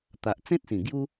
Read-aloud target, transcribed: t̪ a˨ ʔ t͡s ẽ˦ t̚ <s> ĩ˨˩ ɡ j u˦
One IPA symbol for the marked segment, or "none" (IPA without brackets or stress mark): s